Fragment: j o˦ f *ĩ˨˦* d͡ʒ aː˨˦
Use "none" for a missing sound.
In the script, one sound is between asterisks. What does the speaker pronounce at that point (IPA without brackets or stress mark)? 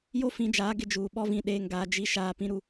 ĩ˨˦